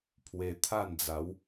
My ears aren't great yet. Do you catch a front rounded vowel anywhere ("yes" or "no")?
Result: no